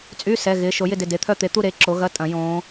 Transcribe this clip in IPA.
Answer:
t͡sʼ y˧˥˧ s ɛ˩˧˩ ɣ ɪː˩˧˩ ʃ o˨˩˦ j ɪ˥˧ d ɪ˩˧˩ d e˩˧˩ t̪ʰ œ˥˧ t̪ e˨˦ t̪ u˥˧ ɾ e˨˦ ǁ o˨˦ ɣ ɐ˧˥˧ tʼ ɐ̃˨˩˦ j õː˨˦

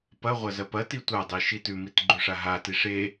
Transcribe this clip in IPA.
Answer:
p ɐ ʁʷ ɐ z ɐ p ɐ t i tʷ a dˤ i ʃ i t ʉ m i t ɡ͡ǃ ʉ ʂ a ɦ a t i ʂ e

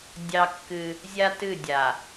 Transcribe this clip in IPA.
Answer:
dʲ ɑ˦ kː ɨ˦ | zʲ a˦ t ɨ˦˨ dʲ a˨

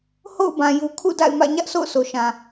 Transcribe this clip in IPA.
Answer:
h o̰˦˨ ʊ̯ b ã˨ j u˨ kʰ ṵ˦˨ d a̰˦˨ ɪ̯ m ä̰˦˨ ɲ ä˦ ʔ sʰ o̰˦˨ ʊ̯ sʰ o˨ ʃ ã˨

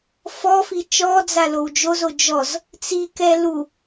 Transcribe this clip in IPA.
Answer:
f ɔ f i t͡ʃ ɔ d͡z a l o w d͡ʒ o z o d͡ʒ ɔ z | t͡s i k ɛ l u

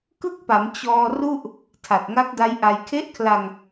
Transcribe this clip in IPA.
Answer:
k ɯ˥˩ k̚ p a˩˦ m t͡ɕ ɔː˧ r u˥˩ ʔ | tʰ a˨˩ t̚ ŋ a˦˥ k̚ d a˦˥ j ʔ a˧ j kʰ e˦˥ ʔ kʰ l a˧ ŋ

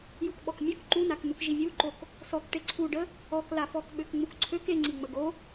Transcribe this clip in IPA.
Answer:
j u k ɓ ɔ k mʲ ø k ǃ u n a k n̪ u k ʒ i vʲ u ǃ o k | s ɔ k ʈ e ǀʰ u ɖ ə | ɔ k l a f ɔ k ɓ ø k ŋ͡m u k ǀʰ ø k e ŋ͡ǀ i ŋ͡m ə ɡ o

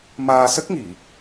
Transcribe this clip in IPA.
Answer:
m aː˧ s ə˦˥ k̚ ŋ i˨˩˨

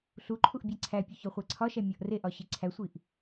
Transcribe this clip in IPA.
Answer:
ɬ u ǃʰ u ʔ bʲ æ ǀʰ æ pʲ o ç ɒ χʷ æ ǀʰ ɒ ʃ æ mʲ ɒ ʔ r e ʔ ɒ ɕ i ǀʰ æ sʷ i ʔ

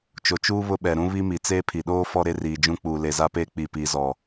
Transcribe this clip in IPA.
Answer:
t͡ʃ o˨ t͡ʃ uː˦ β ʊ˦ ɓ ɛ˨ ɾ ũ˦ β i˦ m i˨ t͡s eː˦ pʰ i˨ ɗ oː˦ f ɔ˦ ɾ e˦ r iː˨ d͡ʒ ũ˦ k͡p uː˨ l e˨ z a˦ p eː˦ k͡p i˦˨ p iː˦ z ɔ˨

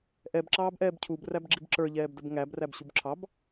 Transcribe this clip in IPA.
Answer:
ʔ ɛ b ǁ ɑː b ʔ ɛː b cʰ u b r æ b ɡ͡ǁ i b ǁ ə˞ ʎ ɛː b d ə b ŋ æ b r æ b ɕ u b ǁʰ ɑ b

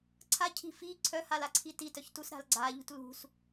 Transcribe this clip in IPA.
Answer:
ǀʰ a cʰ i̤ f i ǀʰ œ h a l a ǀʰ i t i t œ ç t u s ɾ a̤ l ɡ͡ǀ a ʎ ṳ t l ṳ s

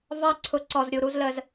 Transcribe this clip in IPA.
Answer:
v ɑ˦ ǀʰ ʊ˧ ǀ ɔ˧ z ɾʲ u˧ ɾ u˧ z l ə˧ z

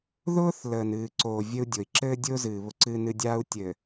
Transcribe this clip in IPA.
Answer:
ð ʊː˦ θ l əː˨ n ɨː˨ ǀ oː˨ vʲ ɘ˦ u̯ dʲ o˨ i̯ ǁ ɘː˦ dʲ ʊː˦ z ɨː˨ β ʊ˦ ǀ ɨ˦ n ɨ˦ dʲ aː˦ u̯ tʲ ɘː˨

